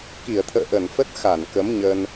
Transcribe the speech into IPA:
k i˧˩ ə̯ t̪ʰ ə̰ː˧˨ ʔ ə˧˩ n f ə˦˥ t̚ x a˧˩ n k ə˨˦ m ɲ ə˧ n

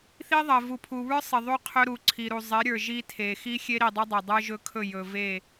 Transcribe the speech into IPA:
θ i˦ ðˤ ɜ˨ v u˨ pʰ u˨ β ə˞˦ sˤ ɪ˨ ðˤ u˦ qʰ ɵ˦ ɾ u˨ ǀʰ i˨ ɾ u˨ zˤ e˨˦ ɾʲ ə˞˨ ʒ i˦ tʰ e˨ x i˦ xʲ e˦ ɾ i˨ dˤ ɵ˦ dˤ ɵ˨ dˤ ə˞˦ ʒ ɵ˦ kʰ ɵ˦˨ j ɵ˨ v e˦˨

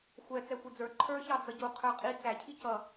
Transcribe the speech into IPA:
xʷ ɛ t͡s ɛ xʷ i d͡z ə˞ ǃʰ ə˞ ç ɑ d͡z ʌ ɟ u qʰ ə˞ qʼ i t͡s æ cʰ i c ʌ

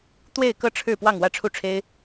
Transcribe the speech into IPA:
t̪ w e˥˧ ɪ̯ k ɤ˥˧ ʈ͡ʂʰ ɻ̩˥˧ p w ɑ˥˧ ŋ w ä˥˧ ʈ͡ʂʰ u˥˩ ʈ͡ʂʰ e˥ ɪ̯

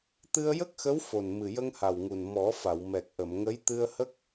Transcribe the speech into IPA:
t̪ ɨ˧ ə̯ j ə˦˥ k̚ x ə˧˥ w f o˨˩ n m ɨ˨˩ j ə˧ ŋ h a˨˩ w ŋ u˨˩ n m ɔ˨˩˦ f a˨˩˨ w m ɛ˨˩ k̚ ʔ ə˨˩˨ m ŋ ə˧˥ j t̪ ɨ˧ ə̯ h ə˦˥ k̚

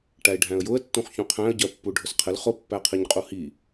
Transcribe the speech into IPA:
ʈ æ ɪ̯ ɖʱ æ̃ ə̯ j ʊ ə̯ tː ũ χ ç ũ qʰ æ̃ ə̯ ɟ ɜ pː u ɖʱ ʊ s qʰ ɪ l χ ʊ pː æ qʰ i ɲ qʼ u h i

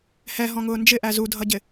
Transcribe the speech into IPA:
h ɛ ɦ ɔ̃ ŋ ʊː n d͡ʒ ɪ ʔ æ z u dʱ ʌ ɟ ɪ

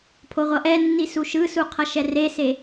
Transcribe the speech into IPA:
pʰ o ʁʷ ʌ ʔ ɛ nː i s u ʃ ɯ s u qʰ ʌ ʃ ɛ r e s e

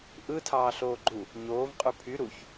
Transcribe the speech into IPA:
ʔ ɯ tʰ ɑː ɬ oː ɡ͡ǃ u | ɲ oː v qʼ y pʰ y ɾ u ç

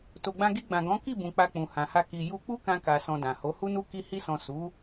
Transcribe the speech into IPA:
t o˨ ɡ͡b ã˧ ɡ i˧ ɡ͡b ã˨ ɡ ɔ̃˨˦ k i˦˨ b ũ˨ k͡p a˧ k͡p ũ˨ h ã˨ h a˧ k i˨ j u˧ k͡p u˦ k ã˧ k a˨ s ɔ̃˧ d ã˨ h o˨˦ h u˦ n u˦ k i˧ h i˧ s ɔ̃˨ s u˨˦

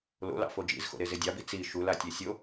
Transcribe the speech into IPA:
l o̰ l ɑ̰ f o d͡ʒ ḭ z x o̰ ɾ e z e dʲ ɑ b i t͡s i ʃ u l a tʲ e sʲ o

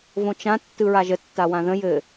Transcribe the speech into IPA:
v õ t͡ʃ ã tː ɯ ɹ a ʒ ə tː a w ã ð ə̃ j ɘ

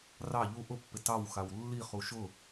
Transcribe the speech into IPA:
r ɑ ʎ u ʔ ʊ pː ɪ t ɑ w x a w lː i χ u ʃ ʊ

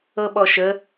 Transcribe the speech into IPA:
ɤ ɓ ɔ ʃ ə

